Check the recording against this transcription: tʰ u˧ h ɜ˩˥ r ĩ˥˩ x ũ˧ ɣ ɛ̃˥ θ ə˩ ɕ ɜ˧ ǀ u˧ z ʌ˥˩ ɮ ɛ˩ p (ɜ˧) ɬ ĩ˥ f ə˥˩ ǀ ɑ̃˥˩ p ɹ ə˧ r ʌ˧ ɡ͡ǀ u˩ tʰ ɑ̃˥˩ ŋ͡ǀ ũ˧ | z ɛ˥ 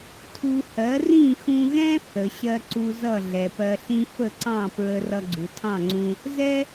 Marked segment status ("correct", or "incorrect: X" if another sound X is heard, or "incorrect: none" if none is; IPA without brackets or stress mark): correct